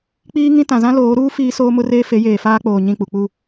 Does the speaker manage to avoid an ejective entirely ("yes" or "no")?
yes